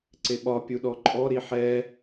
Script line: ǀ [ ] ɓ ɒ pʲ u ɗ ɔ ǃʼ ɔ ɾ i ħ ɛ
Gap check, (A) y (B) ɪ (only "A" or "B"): B